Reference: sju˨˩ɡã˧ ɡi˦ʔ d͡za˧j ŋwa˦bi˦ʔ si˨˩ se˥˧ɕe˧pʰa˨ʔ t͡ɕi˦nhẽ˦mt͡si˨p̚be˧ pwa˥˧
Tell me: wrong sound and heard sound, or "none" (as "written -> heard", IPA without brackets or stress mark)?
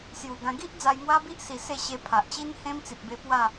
none